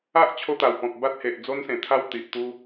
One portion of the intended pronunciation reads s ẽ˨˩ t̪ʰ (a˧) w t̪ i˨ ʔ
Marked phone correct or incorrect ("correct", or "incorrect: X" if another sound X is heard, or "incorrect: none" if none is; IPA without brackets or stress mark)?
correct